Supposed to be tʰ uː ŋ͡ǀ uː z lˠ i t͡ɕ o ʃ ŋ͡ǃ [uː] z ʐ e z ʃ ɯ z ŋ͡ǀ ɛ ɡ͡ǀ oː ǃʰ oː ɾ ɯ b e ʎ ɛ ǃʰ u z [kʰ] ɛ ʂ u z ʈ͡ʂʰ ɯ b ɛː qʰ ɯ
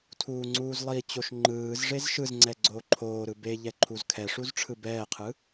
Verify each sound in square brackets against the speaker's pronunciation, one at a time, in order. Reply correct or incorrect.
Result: incorrect, correct

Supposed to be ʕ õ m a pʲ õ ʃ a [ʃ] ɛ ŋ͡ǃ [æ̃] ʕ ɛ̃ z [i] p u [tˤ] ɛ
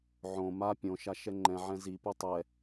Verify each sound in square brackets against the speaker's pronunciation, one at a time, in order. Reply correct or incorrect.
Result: correct, incorrect, correct, correct

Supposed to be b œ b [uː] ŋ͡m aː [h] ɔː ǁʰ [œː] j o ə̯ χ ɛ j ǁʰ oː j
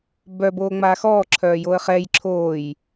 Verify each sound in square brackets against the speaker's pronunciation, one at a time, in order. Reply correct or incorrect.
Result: incorrect, incorrect, correct

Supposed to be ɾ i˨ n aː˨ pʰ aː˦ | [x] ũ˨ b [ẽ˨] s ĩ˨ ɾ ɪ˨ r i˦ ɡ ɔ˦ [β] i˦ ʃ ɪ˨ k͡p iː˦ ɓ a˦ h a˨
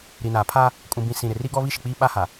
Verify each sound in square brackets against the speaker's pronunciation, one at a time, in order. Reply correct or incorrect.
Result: incorrect, incorrect, correct

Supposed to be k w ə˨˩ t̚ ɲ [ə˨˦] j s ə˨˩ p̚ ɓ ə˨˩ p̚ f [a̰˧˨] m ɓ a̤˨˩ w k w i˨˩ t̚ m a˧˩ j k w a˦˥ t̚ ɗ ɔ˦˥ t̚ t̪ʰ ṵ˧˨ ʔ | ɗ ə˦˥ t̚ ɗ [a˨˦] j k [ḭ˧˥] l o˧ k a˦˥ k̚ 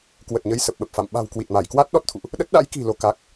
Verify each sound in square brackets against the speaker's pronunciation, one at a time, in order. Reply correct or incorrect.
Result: correct, correct, incorrect, incorrect

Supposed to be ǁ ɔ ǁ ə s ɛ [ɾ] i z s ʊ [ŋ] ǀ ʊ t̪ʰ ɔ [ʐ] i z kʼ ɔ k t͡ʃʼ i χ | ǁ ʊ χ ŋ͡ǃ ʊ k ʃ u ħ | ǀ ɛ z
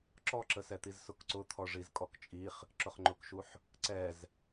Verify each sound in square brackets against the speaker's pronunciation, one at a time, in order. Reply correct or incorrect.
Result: incorrect, incorrect, correct

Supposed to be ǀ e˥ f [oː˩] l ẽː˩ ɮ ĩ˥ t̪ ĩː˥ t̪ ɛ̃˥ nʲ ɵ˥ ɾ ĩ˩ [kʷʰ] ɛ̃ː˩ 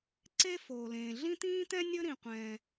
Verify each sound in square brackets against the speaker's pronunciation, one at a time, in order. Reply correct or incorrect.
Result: correct, incorrect

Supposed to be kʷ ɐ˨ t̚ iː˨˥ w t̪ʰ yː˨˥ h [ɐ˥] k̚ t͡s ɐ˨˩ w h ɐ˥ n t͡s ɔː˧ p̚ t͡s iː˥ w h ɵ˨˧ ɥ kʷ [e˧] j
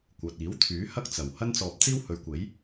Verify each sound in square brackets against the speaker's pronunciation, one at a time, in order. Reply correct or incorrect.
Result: correct, incorrect

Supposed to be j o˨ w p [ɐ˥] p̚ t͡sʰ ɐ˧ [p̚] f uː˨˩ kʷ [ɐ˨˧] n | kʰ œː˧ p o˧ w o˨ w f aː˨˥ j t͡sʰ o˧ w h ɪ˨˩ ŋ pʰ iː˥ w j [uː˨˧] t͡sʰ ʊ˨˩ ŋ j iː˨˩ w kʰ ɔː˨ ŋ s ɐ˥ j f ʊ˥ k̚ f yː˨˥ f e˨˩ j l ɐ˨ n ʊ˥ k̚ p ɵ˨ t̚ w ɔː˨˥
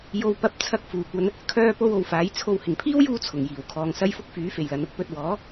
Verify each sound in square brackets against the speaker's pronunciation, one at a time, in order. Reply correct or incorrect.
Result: incorrect, incorrect, incorrect, incorrect

